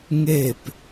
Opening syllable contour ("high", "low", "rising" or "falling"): falling